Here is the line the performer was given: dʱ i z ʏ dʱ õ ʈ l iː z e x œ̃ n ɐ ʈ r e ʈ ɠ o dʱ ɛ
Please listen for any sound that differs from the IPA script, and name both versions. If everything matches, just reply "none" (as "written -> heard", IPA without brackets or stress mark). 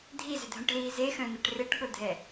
none